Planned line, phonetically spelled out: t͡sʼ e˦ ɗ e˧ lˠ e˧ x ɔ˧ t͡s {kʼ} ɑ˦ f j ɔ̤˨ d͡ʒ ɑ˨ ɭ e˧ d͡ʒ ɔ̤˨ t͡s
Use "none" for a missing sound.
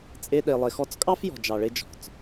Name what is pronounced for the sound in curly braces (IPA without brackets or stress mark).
kʼ